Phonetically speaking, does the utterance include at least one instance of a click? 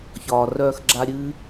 yes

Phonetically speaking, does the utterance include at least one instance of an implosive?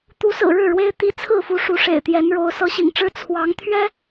no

